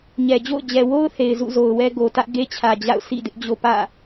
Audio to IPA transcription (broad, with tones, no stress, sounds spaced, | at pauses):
ɲ ɛ˨ d͡ʑ o̰˦˨ ʊ̯ d͡ʑ ɛ˨ w o˦ ʊ̯ θ e˨ ɪ̯ z ṵ˦˨ z o˨ ʊ̯ w ɛ˦ ɡ o˨ t ä˦ ʔ ɡ e˦ t͡ɕʰ ä˨ d͡ʑ a̰˦˨ ʊ̯ sʰ ḭ˦˨ d ɪ˦ ʔ d͡ʑ o˦ p ä̰˦˨